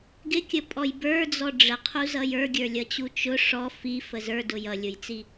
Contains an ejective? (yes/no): yes